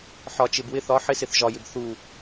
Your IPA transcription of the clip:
ħ ɒ˨ t͡ʃ ɪ˨ b w ɪ˦˨ θ ɒ˦ ħ ɪ˦ s ɪ˨ θ ʒ ɒ˨ j ɪ˨ b θ u˨

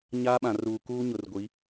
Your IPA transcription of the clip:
ɲ aː˦ ɓ ã˨ r uː˨ k uː˦ ɲ ʊ˨ r ɡʷ i˨˦

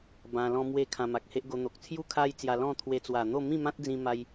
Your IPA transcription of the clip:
b ã˧ l ɔ̃˦ m w e˦ kʰ ã˧ m a˨ k̚ h e˦ ʔ ɡ o˧ n̪ o˨ k̚ t͡sʰ j u˥˧ kʰ a˦ j t͡s j a˧ l ɔ̃˥˧ t̪ʰ w e˧ t͡s w a˨˩ n̪ o˥˧ m ĩ˥˧ m ã˦ t̚ d͡z ĩ˦ m a˦ j

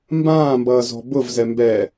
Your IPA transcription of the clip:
m b ãː m b ʌː z ɔ̤ b ʊ v z ɛ m b ɛ

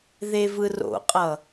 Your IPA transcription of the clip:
ð e v ɯ r o̰ qʼ ʌ

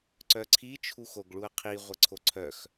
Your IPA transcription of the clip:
ǀ œ ǀʰ i t͡ʃʰ u x o ɡ ɭ u ɐ̯ qʰ i ʁʷ ə ǀʰ o ǀʰ œ x

